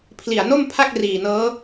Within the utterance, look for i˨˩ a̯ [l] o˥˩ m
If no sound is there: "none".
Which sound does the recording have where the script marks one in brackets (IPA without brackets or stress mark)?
n